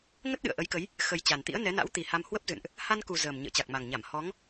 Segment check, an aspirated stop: absent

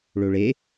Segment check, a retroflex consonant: present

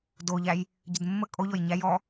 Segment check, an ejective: present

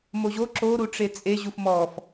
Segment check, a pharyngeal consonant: absent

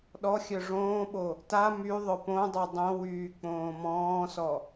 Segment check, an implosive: present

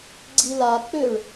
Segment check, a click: present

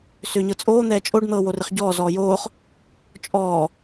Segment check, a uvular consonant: present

